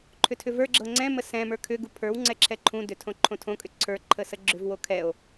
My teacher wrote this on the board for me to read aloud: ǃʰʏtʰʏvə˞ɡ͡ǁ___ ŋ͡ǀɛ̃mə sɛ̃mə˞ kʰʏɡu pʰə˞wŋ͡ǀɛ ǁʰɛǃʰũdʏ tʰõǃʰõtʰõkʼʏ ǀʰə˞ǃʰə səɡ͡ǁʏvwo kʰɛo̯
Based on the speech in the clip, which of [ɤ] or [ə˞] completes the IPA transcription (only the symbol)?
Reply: ɤ